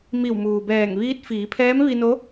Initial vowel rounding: unrounded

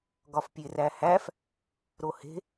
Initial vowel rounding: rounded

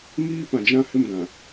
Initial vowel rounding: unrounded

